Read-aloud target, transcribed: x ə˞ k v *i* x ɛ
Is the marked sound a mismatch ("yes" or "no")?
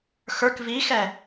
no